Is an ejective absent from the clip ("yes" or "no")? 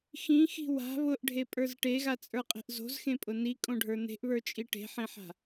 no